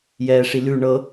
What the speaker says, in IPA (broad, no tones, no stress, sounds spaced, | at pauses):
j ɛː ʂ i l ʉ ɳ ɤ